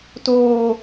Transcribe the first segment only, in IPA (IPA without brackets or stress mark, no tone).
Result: t